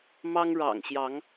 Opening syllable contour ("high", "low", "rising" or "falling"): high